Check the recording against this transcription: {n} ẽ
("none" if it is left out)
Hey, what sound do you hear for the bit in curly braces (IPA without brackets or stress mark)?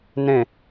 n